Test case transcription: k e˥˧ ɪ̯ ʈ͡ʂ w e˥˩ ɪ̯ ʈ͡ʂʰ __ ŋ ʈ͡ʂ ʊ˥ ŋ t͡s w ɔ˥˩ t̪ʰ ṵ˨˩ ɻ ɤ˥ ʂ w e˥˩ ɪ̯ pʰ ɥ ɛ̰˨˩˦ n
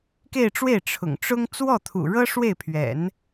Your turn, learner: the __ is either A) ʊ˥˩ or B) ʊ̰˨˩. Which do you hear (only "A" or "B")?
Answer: B